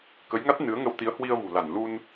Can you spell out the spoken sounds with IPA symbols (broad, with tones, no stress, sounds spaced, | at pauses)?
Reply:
k ə˨˦ j ŋ a˦˥ t̚ n ɨ˨˦ ə̯ ŋ ə˧ w t̪ i˨˦ ə̯ h w i˧ ə̯ v ṳ˨˩ l a˧˩ n l u˧ n